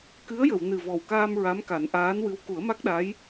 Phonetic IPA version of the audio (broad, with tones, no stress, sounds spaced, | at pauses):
k ɨ˧˥ ə̯ j ə˨˩˨ w n ɨ˨˩ v ɔ˨˩ w k aː˧ m ɹ a˧˥ m k a˨˩˦ n ʔ aː˧˥ n w ɨ˧˥ w k u˨˩˦ ə̯ m a˦˥ k̚ ɗ a˧˥ j